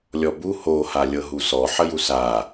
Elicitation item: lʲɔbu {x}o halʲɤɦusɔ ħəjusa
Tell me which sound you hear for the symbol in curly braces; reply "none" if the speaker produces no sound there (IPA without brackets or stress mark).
h